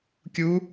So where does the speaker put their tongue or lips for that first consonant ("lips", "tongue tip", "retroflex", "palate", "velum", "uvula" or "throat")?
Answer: velum